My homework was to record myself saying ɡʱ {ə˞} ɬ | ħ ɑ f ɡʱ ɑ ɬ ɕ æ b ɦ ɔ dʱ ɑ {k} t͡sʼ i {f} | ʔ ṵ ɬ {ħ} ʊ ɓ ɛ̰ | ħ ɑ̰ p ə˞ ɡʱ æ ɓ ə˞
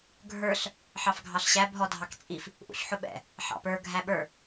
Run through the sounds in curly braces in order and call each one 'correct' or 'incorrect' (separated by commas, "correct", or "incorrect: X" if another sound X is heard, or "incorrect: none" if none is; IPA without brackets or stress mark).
correct, correct, correct, correct